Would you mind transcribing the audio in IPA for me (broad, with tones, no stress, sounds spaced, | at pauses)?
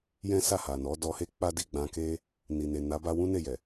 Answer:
j ɛ̃˦ s a˦˨ h a˨ n ɔ˨˦ d ɔ˧ h e˦ k͡p a˦ d i˦˨ ɡ͡b ã˧ k e˦ | n i˨ n e˨ n a˨˦ b a˧ w ũ˦ n e˦˨ j ɛ˨